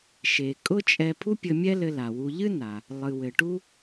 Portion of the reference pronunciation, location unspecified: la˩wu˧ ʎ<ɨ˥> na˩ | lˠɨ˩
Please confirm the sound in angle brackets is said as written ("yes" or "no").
yes